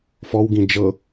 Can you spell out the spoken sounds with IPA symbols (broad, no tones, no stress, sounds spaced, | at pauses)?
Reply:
f ɔ w ɡ ĩ d͡ʒ ɤ